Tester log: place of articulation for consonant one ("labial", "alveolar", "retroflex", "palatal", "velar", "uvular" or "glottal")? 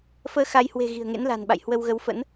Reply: labial